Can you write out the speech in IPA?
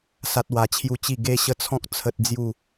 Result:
sa˦t̚wa˧t͡ɕʰju˦t͡ɕi˥˧ ɡe˦ɕə˦t͡sʰɔ̃˦k̚ t͡sʰə˦t̚d͡zju˥˧

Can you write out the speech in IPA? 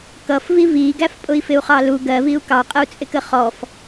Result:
kʌfvi viɡæf pʼʊi̯fɪu̯χɑlu ɡɜviu̯ kɑqʼəu̯t͡sʼɪkə χɔf

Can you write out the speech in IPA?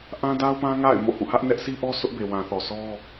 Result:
ʔã˦da˦ʊ̯pã˦ ŋa̰˦˨ɪ̯ mo̰˦˨hṵ˦˨ hä˦ʔnɛ˦ʔ sʰi˦ʔɔ˦sʰʊ˦ʔ be˨wã˨θɔ˨ sʰɔ˦

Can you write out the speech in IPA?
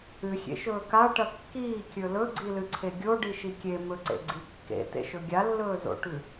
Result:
ɨxʲḛʃɵː kaʈɐ kːiːkʲɵ lɵɡ͡ǀilɨǀʰe ɡʲoɖiʃi kʲemɵǀḛɡ͡ǀi kːḛtḛʃɵ ɡʲalːɵːzo̰ʈʉ

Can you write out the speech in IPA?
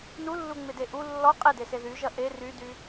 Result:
nulːuŋ͡mede ʔu lːɔ qʼedese ðyʒɐ ʔe rydy

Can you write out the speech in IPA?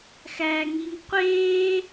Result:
xæŋiŋ qʷeː

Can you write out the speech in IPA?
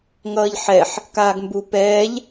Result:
ŋʌːʎħɛħ | kaːɡmbu pɛːʎ

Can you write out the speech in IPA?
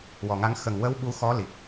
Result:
wɔ˨˩ŋa˧˥ŋ xə˨˩ŋ wə˧˥w ɓu˧xɔ˧˥li˨˩k̚

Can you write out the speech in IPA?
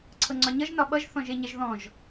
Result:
ǀʰɤŋ͡ǀɒɲʌʒ nɒɓʌʒ θɔ̃ʒeɲɛʒðɔ̃ʒ

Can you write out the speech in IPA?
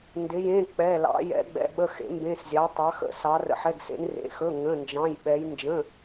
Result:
ndɪ˩˧jẽ˩˧˩ k͡pɛ˩˧˩ lɑ̰˩˧ jɛ̰˩˧ɡ͡bɛ̰˩˧˩ɓə˩˧˩xḛ˩˧ mbẽ˩˧˩s zʲɑ˩˧ tˤɑ˩˧xə̰˩˧ sɑ˩˧rə̰˩˧ħɛ˩˧˩ɡsḛ˩˧n rḛ˩˧xɵ˩˧˩ ŋə̃˩˧˩nd͡ʒɑ̃˩˧˩jɓɛ˩˧j nd͡ʒə̃˩˧˩

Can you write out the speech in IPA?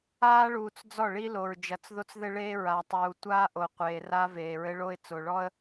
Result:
aː˦ɭuː˨t͡s d͡zɔ˦˨ɭi˦lo˨ɹ d͡ʒɐ˨t͡sðo˦t͡sðɘ˦ ɭeː˦ɹa˨tˤuː˨ tʷaː˦ʔo˨ qʷeː˨ra˦ veː˨ ɹɘ˦ɭo˦ɪ̯ t͡so˨ɭɔ˦ə̯

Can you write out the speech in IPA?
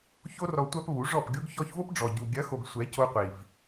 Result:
ço˦rɔ˧ tʷa˧p βu˨˦ʐɔ˦˨pɡʲo˦ɡ çɔ˧çvo˦p ɖ͡ʐɔ˨ɟu˨ ɡʲɐ˨˦xo˨ɡ sʷɛ˨˦co˧qʷi˨v

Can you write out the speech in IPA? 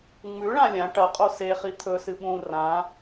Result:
ŋ͡mʉɭã lʲã ʈɐqʼo seχi t̪ʰɵsɨ ɓũ rã

